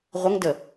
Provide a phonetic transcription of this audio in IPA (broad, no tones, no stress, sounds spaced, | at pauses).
ʁʷ ə ŋ d ə